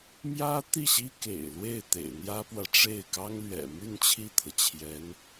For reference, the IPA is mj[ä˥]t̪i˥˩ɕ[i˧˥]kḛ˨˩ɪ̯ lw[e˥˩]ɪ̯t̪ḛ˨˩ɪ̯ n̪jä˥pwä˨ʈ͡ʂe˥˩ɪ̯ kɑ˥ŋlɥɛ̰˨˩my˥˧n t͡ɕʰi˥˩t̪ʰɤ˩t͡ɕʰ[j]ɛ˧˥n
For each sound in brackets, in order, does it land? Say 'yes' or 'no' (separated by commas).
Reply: yes, no, yes, yes